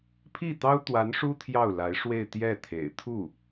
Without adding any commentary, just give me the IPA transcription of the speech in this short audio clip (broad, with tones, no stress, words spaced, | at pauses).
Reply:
pʰi˥˩t̪ɑ˥ʊ̯t̪wa˧˥nʂu˥ t̪ʰjɑ˥˩ʊ̯la˧˥ɪ̯ʂwe˥˧ɪ̯ t̪jɛ˥˩ t̪ʰḛ˨˩ɪ̯t̪ʰu˥˩